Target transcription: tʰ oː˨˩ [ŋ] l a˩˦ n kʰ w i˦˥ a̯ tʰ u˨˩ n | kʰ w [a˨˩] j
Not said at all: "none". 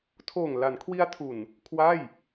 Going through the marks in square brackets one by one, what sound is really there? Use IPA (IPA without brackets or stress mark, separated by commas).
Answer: ŋ, a˥˩